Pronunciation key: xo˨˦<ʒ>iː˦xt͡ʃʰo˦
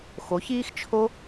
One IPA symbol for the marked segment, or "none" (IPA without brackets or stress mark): ç